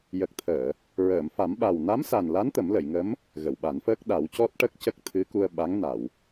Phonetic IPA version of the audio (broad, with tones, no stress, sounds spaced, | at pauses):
j ə˨˩ k̚ t̪ʰ əː˨˩˨ | ɹ əː˨˩˨ m f a˨˩˦ m ɓ a˨˩ w n a˧˥ m s a˨˩ n l a˧˥ n t̪ ə˨˩˦ m l ə˨˩˨ j ŋ ə˧˥ m | ɣ ə˨˩˨ w ɓ a˨˩˦ n f əː˦˥ k̚ ɗ a˨˩˦ w c ɔ˦˥ t̚ ʈ ə˦˥ k̚ c ə˦˥ k̚ t̪ʰ ɨ˧˥ k u˧ ə̯ ɓ a˧˥ ŋ n a˨˩˨ w